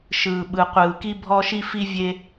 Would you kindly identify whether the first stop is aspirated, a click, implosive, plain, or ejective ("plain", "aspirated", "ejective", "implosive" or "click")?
implosive